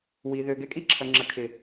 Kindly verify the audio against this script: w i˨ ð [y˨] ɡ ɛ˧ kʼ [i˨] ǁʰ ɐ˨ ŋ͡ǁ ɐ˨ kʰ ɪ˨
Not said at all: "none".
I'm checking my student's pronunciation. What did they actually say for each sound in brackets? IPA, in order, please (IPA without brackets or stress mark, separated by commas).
ø˨, i˦